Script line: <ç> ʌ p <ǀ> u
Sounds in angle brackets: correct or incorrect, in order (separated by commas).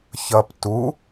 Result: correct, incorrect